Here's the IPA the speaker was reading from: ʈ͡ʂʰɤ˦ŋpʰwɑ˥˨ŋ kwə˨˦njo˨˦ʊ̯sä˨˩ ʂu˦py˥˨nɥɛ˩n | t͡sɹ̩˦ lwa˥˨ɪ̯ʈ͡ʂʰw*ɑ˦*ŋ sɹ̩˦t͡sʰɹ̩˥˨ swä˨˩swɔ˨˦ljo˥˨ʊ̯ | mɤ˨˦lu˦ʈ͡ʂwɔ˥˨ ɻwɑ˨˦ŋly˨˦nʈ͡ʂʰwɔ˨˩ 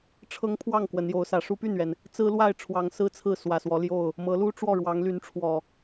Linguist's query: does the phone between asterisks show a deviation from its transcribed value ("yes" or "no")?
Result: yes